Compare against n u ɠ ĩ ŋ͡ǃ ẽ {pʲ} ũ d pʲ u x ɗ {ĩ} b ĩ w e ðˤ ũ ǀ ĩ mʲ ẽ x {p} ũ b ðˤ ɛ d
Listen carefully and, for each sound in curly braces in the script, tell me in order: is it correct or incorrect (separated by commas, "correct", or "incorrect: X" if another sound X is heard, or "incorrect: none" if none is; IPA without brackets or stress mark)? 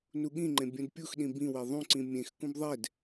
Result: incorrect: bʲ, correct, incorrect: k